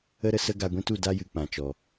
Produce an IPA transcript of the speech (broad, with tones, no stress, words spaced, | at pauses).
ə˦ɾə˧ sə˧ɡa˨ɡʷĩ˧tu˨ da˦jɨ˨k͡pã˨t͡ʃɔ˨